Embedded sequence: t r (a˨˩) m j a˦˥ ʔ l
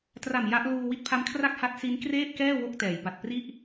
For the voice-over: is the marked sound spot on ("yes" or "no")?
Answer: yes